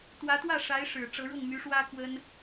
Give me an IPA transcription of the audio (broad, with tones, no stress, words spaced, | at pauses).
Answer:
t̪wä˧˥t̪wä˥˩ʂa˧˥ɪ̯ ʂɻ̩˨˩ ʈ͡ʂɤ˧˥ɻʊ˥˩ŋmy˧˥ʂwä˥ kwə˥n